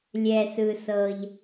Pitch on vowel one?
low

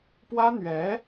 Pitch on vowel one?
high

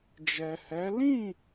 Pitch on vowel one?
low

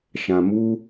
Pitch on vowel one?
low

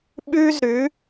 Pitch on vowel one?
high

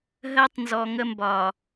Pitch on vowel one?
high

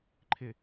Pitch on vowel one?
low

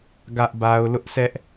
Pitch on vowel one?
high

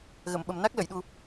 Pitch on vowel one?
low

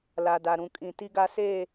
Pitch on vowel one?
low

